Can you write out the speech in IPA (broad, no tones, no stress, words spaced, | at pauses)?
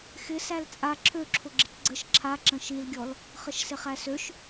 xɪ sælt͡sʼa ǁʰøǁʰʊ ɡ͡ǁɪcɡ͡ǀəʃ ǁʰa ǁə̃ʃilɡʲɔl | χəʃsɪχæsøʃ